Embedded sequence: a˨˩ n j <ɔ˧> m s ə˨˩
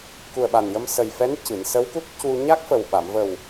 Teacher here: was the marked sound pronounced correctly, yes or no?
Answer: no